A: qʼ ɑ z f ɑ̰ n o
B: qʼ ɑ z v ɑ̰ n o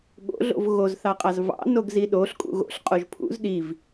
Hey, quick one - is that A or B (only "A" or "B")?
B